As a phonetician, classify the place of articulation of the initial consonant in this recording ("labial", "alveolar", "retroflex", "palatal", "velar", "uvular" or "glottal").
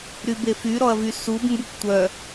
alveolar